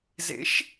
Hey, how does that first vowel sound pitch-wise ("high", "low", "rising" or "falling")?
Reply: rising